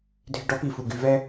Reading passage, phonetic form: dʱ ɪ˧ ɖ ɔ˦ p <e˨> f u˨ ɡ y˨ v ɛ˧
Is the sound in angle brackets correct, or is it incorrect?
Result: incorrect